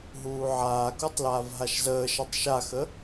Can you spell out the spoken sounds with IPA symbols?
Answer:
ɦ uː ʕ aː k u tˤ l aː v ɦ a ʃ z əː ʃ a tˤ ʃ a x ə

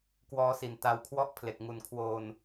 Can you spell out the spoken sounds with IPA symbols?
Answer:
k w ɔː˦˥ s i˨˩ n t a˧ w kʰ w ɔ˥˩ ʔ pʰ l e˨˩ k̚ ŋ u˨˩ n kʰ w oː˧ n

